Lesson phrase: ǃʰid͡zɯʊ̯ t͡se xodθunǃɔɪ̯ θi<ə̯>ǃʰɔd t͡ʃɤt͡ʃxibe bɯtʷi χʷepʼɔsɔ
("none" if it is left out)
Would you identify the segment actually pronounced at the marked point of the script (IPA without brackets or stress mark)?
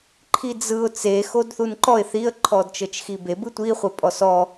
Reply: ə̯